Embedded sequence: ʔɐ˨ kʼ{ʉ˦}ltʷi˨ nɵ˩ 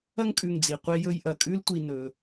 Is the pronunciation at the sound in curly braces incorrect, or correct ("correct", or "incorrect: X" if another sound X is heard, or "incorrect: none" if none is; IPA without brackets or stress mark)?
correct